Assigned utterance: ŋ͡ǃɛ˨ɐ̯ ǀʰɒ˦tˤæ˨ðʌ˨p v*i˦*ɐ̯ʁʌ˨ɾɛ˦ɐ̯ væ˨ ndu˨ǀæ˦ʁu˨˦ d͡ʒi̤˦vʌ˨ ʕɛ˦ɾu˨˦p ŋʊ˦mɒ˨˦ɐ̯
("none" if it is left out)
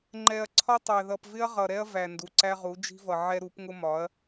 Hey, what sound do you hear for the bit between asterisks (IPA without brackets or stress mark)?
ɪ˦